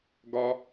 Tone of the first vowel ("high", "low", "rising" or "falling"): high